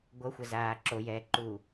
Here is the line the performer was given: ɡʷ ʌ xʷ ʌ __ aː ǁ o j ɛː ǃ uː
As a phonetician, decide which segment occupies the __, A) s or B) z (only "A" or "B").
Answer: B